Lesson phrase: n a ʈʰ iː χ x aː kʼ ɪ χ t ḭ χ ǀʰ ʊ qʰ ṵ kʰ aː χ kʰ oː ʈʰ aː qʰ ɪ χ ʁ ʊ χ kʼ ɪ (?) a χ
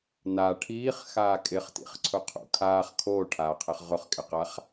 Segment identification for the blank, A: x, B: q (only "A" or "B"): B